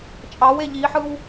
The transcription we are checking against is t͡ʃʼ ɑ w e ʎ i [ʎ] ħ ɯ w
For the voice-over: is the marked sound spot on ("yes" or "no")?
no